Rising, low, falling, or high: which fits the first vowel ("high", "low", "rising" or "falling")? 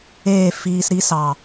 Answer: falling